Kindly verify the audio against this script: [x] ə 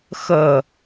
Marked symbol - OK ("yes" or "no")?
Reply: yes